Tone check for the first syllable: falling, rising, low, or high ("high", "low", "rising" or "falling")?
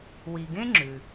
low